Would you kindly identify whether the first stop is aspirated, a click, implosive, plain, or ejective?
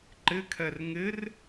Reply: click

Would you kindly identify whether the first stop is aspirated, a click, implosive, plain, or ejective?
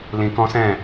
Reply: plain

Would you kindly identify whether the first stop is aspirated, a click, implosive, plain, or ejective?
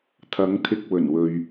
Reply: aspirated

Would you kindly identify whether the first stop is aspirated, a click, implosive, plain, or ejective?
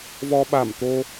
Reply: implosive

